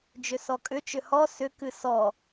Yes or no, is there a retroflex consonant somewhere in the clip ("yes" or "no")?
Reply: no